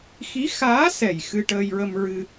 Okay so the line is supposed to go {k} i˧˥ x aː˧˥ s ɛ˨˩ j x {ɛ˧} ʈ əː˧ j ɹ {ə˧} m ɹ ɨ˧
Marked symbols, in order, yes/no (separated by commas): no, no, yes